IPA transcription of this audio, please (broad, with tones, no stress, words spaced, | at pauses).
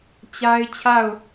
t͡ɕa˦ɪ̯ t͡ɕʰa˦˨ʊ̯